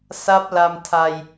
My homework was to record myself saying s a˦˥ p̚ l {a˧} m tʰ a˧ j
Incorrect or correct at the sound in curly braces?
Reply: correct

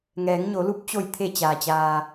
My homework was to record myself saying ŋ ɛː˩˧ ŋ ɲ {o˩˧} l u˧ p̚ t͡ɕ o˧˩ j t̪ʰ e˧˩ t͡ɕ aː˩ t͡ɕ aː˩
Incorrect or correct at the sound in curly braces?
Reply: correct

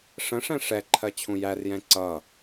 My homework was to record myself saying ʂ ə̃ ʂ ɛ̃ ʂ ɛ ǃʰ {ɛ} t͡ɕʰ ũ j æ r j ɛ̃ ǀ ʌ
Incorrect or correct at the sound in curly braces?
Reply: incorrect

